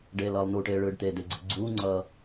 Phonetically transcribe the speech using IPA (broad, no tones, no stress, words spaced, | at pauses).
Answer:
ɖeːlʌːlˠnuʈeː ɭɯːɖt̪eːd̪eɡ͡ǀɯ ɡ͡ǀuːŋ͡ǀʌː